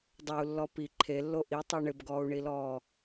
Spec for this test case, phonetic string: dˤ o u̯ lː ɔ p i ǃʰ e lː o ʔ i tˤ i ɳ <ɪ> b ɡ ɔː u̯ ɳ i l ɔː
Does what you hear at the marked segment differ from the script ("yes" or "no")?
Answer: no